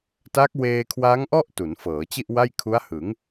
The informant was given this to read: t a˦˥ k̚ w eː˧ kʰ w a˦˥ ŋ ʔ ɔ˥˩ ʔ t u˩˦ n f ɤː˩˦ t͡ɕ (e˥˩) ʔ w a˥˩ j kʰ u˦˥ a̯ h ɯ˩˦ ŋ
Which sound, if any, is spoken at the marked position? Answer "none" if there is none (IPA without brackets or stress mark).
i˥˩